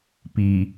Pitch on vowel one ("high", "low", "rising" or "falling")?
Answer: low